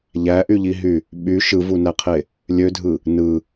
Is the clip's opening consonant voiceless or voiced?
voiced